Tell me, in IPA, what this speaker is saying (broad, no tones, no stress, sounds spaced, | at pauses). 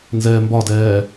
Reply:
n z ɛː m b ɒ d ɛː